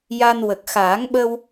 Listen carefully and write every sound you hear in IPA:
j a˧ n w ə˨˩ k̚ x aː˨˩˦ ŋ ɓ ə˧ w

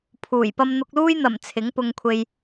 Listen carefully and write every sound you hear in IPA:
pʰ uː˨˩ j p ɐ˧ m n̪ ʊ˧ k̚ l uː˥ j n̪ ɐ˨˩ m t͡sʰ ɪ˨˥ ŋ p ʊ˧ ŋ kʷʰ e˧ j

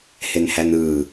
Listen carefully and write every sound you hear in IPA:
h e n h æ n ɯː

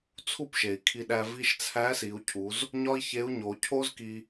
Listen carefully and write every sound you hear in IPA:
t͡sʰ u˥ p ʃ e˩ i̯ kʰ i˧ ɗ æ˧ v i˧ ʃ t͡sʰ æ˧˥ s i˩˧ u̯ cʰ u˩˧ z | ɲ ɒ˥ i̯ ç e˧˥ u̯ ɲ o˩˧ cʰ o˥ z k i˧

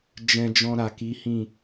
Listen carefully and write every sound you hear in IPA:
d͡ʒ ɛ̃˧ d͡ʒ ɔ̃˧ ɾ a˨ k i˨˦ h ĩ˦˨

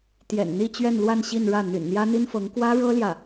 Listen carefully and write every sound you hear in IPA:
t̪ j ɛ̰˨˩ n n̪ i˥˧ t͡ɕ ɥ ɛ˥˧ n l w a˥˧ n ɕ i˥˧ n ɻ ä˥˩ n̪ y̰˨˩ n n̪ j ä˥ n̪ i˥ n f ɤ˧˥ ŋ k w ä˥ ɻ ɤ˥ l j ä˥˩

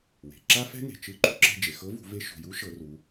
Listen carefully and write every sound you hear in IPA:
w e̤˩ ǁ a˥ f ɛ̤˥ n e̤˩ t͡ʃ ɯ˧˥ ǃ ṳ˥ ǁ ɛ̤˧ d͡ʒ e˩ x ɤ˧˥ v ṳ˩˧ v e˧˥ ʃ ṳ˩ j u˧˥ ʃ ɤ˩˧ r u˩˧

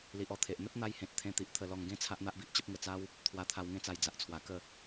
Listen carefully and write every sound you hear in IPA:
l i˨ ʔ ɔ˧ t̪ʰ e˨ ʔ n̪ ə˦ t̚ n̪ a˧ j h ẽ˨ t̚ t̪ʰ ẽ˧ t̪ i˨ ʔ t̪ʰ ə˧ l ɔ˧ ŋ ɡ ẽ˦ t͡sʰ a˦ ʔ n̪ a˦ ʔ b i˨ ʔ t͡ɕ ə˦ p̚ ŋ ə˧ t͡s a˦ w | t̪ʰ w a˧ t̪ʰ a˧ w ŋ ẽ˥˧ t͡s a˧ j d͡z a˨ ʔ t͡sʰ w a˨˩ k ə˥˧

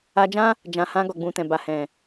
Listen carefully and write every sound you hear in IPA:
a˧ d͡ʒ ã˦ | d͡ʒ ã˨ h ã˧ ɡ ɔ˨ ɡ͡b ũ˨ t ɛ̃˨ b a˨ h ɛ̃˨

